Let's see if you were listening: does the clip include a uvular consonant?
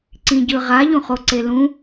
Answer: yes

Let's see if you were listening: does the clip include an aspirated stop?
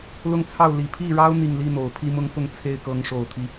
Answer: yes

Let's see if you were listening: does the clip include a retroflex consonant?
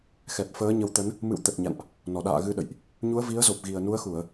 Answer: no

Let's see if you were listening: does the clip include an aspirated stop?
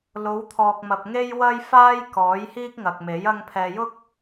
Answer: yes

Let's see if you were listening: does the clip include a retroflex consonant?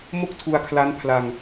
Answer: no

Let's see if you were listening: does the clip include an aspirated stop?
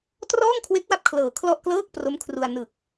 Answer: yes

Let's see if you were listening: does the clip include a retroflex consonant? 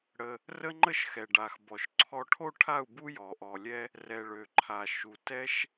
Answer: yes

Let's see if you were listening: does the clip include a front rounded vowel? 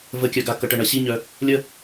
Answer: yes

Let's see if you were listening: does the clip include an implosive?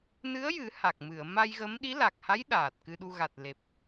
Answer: yes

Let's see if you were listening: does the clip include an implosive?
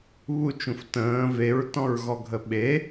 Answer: yes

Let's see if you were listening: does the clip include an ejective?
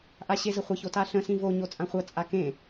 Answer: yes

